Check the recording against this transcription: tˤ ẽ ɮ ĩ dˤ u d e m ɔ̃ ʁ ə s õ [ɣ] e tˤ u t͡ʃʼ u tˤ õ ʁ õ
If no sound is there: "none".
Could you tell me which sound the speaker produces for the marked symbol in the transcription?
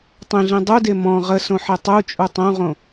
ħ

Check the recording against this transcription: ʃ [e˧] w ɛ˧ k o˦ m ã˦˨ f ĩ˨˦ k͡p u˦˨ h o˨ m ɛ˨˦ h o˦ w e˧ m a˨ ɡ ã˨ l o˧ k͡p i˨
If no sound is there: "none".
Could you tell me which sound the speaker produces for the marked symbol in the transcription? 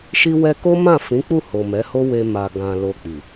i˧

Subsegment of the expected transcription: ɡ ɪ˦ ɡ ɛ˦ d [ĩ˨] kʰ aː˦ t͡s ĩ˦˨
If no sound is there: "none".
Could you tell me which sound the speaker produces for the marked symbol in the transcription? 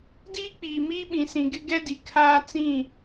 i˨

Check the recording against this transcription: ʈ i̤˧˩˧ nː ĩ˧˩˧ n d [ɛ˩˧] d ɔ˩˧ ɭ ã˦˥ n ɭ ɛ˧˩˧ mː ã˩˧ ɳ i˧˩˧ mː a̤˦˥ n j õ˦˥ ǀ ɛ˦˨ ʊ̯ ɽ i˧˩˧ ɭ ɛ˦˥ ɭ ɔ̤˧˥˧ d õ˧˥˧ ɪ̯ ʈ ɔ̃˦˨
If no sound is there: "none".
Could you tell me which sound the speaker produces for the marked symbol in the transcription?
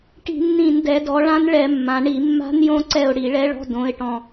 ɛ˩˧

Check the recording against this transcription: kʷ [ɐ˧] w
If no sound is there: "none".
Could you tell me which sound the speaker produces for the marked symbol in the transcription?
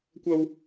ɐ˥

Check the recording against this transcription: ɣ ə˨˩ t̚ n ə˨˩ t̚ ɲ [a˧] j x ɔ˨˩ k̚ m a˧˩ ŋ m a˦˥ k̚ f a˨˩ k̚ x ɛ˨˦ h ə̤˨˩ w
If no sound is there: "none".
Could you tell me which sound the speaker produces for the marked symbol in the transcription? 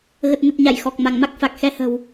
a˧˩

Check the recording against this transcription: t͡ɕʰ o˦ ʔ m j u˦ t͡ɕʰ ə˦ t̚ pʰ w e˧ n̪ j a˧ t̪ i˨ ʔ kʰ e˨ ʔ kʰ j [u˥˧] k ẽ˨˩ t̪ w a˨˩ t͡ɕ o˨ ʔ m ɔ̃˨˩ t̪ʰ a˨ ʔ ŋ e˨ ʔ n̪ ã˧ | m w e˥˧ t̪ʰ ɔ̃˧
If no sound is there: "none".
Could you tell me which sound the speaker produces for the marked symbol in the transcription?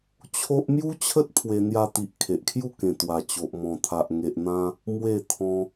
u˥˧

